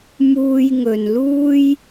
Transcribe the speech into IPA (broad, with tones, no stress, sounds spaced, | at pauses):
m uː˧ j ŋ ɵ˨ n l uː˥ j